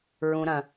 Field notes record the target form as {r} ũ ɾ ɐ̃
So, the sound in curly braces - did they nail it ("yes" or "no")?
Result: no